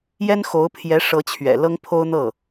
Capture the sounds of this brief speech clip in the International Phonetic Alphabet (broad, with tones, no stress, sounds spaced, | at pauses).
j ɛ˥ n x o˧˥ ʊ̯ pʰ j ɛ˧˥ ʂ ɤ˧˥ t͡ɕʰ ɥ ɛ̰˨˩ l ɤ˥ ŋ pʰ o˥ ʊ̯ n̪ ɤ˥˩